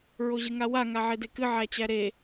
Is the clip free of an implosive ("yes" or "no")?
yes